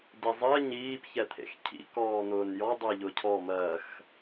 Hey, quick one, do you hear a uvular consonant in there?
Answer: no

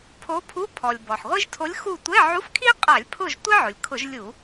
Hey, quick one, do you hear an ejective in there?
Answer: yes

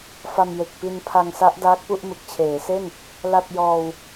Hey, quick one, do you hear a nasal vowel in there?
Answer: no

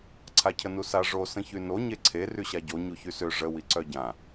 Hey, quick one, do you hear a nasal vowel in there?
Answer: yes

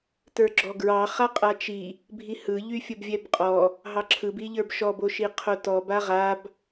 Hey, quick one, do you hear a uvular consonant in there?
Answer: yes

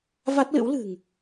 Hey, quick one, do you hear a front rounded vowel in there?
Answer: no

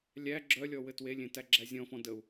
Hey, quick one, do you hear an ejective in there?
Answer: no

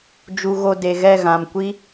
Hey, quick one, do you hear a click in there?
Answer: no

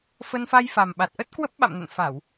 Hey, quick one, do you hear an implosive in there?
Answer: yes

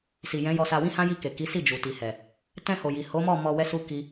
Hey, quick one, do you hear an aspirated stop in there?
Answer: no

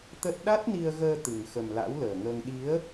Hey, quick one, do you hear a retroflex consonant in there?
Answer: no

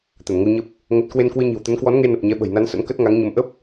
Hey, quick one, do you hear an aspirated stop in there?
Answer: no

